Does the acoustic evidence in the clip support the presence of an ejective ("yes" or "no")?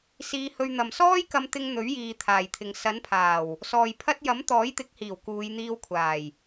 no